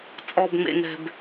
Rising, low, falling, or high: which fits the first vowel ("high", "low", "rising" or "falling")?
low